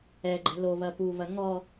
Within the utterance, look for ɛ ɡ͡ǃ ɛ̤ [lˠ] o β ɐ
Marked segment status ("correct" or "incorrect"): incorrect